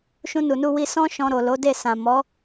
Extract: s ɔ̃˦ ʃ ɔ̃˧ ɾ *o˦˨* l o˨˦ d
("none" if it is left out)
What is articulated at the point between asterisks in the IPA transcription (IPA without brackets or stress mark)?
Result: o˨